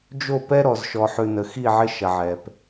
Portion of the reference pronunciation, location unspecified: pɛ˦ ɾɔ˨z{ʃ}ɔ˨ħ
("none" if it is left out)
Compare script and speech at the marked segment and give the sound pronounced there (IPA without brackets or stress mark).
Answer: ʃ